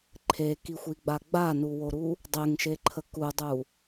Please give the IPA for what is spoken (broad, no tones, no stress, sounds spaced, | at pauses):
ǃʰ e k i xʷ i ɡ͡b a ɡ͡b a n u w o ɾ u | dˤ e ŋ ʃ e ǃʰ ə k u dˤ u